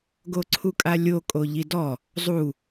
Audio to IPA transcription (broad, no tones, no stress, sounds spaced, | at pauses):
ɡ o ǀʰ u kʼ a lʲ o kʼ o ʎ i d ɔ | zˤ u